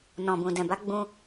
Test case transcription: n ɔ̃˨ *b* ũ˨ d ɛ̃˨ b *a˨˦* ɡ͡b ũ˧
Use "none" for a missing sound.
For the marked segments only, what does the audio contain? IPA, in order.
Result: b, a˨˦

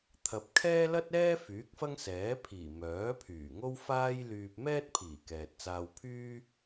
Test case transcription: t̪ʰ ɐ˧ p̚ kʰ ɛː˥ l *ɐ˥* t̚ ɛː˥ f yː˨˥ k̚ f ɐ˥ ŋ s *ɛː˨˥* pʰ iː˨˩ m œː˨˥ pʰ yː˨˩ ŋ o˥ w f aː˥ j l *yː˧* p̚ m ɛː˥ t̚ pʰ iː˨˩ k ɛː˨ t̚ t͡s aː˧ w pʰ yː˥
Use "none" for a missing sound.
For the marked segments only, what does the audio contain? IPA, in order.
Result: ɐ˥, ɛː˨˥, yː˧

